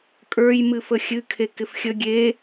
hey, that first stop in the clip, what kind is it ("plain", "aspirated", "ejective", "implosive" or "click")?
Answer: ejective